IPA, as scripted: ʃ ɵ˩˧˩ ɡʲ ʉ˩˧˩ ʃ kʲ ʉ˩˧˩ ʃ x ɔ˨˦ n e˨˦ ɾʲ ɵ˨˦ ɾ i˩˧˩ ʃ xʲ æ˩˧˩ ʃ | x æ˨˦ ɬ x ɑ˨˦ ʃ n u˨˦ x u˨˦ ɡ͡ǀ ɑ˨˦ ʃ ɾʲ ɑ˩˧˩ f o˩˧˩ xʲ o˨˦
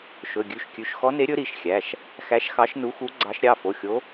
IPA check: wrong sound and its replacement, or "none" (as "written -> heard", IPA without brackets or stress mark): ɬ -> ʃ